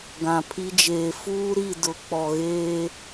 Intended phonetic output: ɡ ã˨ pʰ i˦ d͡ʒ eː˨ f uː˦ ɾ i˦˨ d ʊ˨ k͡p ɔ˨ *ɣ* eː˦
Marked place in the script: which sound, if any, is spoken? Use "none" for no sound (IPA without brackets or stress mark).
ɣ